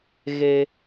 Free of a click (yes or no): yes